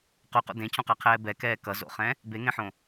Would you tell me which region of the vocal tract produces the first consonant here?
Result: uvula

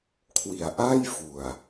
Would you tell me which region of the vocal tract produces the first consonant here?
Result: velum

